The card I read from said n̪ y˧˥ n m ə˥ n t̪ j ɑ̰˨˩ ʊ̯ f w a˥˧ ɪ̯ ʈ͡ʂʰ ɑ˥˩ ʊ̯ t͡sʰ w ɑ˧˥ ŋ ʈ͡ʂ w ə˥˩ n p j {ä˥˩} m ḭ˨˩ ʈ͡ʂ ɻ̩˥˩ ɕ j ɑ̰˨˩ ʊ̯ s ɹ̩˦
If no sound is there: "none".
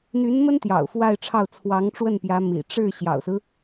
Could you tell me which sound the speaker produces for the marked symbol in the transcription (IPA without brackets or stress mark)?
ä˧˥